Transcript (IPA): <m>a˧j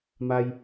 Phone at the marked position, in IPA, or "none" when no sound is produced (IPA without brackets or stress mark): m